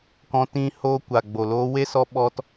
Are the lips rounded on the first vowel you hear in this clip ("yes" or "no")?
yes